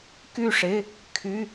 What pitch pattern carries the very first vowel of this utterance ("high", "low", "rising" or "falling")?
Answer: falling